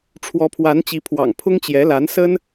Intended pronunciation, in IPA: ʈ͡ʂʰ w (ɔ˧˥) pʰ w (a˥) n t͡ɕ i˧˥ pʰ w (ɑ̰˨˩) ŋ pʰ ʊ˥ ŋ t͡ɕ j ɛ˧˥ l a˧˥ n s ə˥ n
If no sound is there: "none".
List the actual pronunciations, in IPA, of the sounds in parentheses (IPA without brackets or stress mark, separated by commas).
ɔ˧˥, a˧˥, ɑ̰˨˩